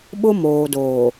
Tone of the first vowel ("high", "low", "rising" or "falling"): high